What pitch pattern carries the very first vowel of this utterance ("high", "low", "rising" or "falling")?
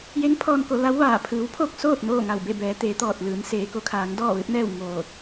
rising